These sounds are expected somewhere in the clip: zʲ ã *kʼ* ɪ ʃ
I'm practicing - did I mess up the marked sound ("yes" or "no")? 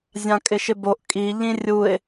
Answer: no